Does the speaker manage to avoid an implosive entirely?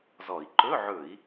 yes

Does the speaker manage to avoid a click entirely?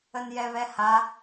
yes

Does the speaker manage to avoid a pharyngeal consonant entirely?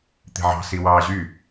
no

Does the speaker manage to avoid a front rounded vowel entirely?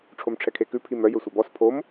no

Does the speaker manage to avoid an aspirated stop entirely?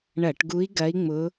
yes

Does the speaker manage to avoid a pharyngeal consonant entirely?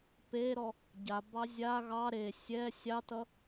yes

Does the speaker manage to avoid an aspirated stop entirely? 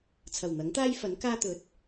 no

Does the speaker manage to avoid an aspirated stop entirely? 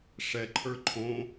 no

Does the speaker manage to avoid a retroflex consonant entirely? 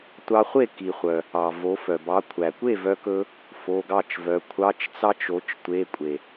yes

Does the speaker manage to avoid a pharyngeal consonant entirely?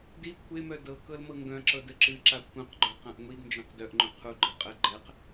yes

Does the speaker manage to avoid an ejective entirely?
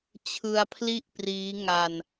yes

